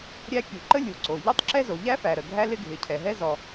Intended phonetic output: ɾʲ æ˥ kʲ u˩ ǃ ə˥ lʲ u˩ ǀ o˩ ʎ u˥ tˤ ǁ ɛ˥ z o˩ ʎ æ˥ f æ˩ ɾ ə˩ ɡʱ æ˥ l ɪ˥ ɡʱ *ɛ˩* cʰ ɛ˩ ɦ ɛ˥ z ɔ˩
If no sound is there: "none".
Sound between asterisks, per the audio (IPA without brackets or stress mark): ɪ˩